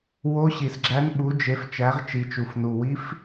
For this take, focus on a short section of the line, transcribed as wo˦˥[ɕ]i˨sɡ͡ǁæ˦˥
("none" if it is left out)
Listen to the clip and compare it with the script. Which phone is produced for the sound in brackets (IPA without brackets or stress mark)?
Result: ɕ